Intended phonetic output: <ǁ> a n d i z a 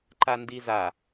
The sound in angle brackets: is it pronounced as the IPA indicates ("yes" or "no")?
no